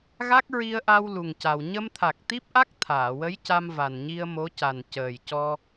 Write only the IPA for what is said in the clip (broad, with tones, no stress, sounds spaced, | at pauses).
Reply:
ɣ a˦˥ k̚ ɹ i˧ ə̯ ʔ a˧ w l u˨˩ ŋ c a˨˩ w ɲ ə˧ m t̪ʰ a˨˩ k̚ t̪ i˦˥ p̚ ʔ a˦˥ k̚ t̪ʰ aː˨˩˨ w ə˧˥ j c a˧ m v a˨˩ n ɲ i˧ ə̯ m o˧˥ c a˨˩ n c əː˨˩ j c ɔ˧